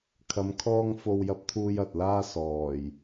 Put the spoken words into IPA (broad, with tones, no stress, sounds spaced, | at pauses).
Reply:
kʰ ɐ˧ m kʰ ɔː˥ ŋ f o˥ w j ɐ˥ p̚ t̪ʰ uː˥ j ɐ˨ t̚ l aː˥ s ɔː˨˩ j